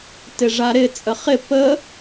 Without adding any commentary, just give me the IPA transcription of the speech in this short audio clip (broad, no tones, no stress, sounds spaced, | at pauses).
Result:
t ɪ ʐ a ɾ ɪ t͡sʼ ə χ ɪ p ə